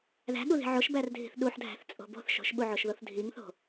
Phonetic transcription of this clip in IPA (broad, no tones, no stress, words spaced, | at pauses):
ðæ̤ɠuði̤ ʕoʃbærdʱi̤θ ɗuħdʱæ̤θt͡sʼo̤ bo̤θ ʃo̤ʃɓuʕoʃðoθ dʱiŋθo̤